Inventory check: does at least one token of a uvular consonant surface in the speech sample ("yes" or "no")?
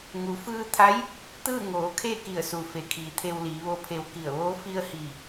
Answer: no